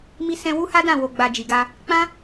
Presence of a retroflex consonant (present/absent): absent